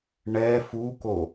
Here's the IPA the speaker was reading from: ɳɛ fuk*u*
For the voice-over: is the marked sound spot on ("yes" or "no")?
no